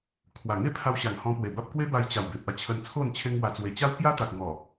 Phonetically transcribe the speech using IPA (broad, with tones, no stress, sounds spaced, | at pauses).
kʰ w a˨˩ ŋ e˥˧ pʰ a˧ w ɕ a˨˩ ŋ h ɔ̃˧ p w e˨˩ b a˦ p̚ k w e˦ b a˧ j t͡ɕ a˨˩ w b e˨ p̚ a˦ t͡ɕʰ ə˧ n t͡sʰ o˥˧ n t͡ɕʰ e˦ ŋ w a˧ t͡s w e˧ t͡ɕ a˦ w k j a˦ t̪ a˨ k̚ ŋ ɔ˨˩